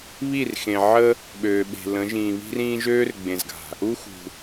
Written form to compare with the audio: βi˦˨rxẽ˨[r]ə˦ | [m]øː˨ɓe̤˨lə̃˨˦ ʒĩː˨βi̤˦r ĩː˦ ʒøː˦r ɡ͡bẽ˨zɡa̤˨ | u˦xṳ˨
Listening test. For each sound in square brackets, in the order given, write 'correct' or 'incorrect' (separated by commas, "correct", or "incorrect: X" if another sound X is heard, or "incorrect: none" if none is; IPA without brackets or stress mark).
incorrect: ʕ, incorrect: ɓ